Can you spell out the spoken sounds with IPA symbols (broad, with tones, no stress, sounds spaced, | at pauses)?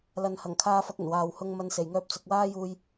l ɐ˨ n h ɐ˨˩ ŋ kʰ aː˧ f ɐ˧ k̚ ɵ˨˩ n w aː˨ w h ʊ˧ ŋ m ɐ˨ n s e˨˩ j ŋ œː˧ p̚ t͡s ʊ˨ k̚ w aː˥ j uː˧ j